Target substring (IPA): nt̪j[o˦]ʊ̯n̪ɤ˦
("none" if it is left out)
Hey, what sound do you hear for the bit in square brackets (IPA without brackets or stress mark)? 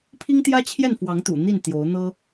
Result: o˨˦